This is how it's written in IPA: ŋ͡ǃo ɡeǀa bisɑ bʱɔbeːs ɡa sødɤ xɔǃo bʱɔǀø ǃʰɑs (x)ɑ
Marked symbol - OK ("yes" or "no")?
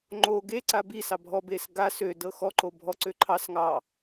no